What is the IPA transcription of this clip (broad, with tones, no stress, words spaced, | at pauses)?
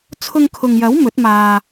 t͡sʰʊ˧ŋkʰʊ˨ŋjɐ˨˥w mɵ˨˥t̚maː˧